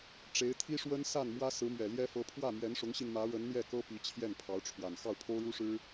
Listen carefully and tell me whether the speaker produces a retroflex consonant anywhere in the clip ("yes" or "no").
yes